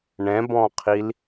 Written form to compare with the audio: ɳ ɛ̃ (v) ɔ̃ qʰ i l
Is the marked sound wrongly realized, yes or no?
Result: yes